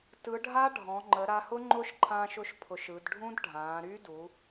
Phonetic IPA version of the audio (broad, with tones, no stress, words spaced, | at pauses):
tɯ˩˧ɖʱa˦˥ ɖʱɔ̃˩˧ŋ͡ǃə˩˧ ɾa˧hʊ˦˥ŋ͡ǃʊ˦˥ʃ ǃʰã˧ʃʊ˧ʃpʰʊ˩˧ʃ ɯ˩˧d ɖʱũ˦˥dɖʱãː˩˧ɾy˦˥du˩˧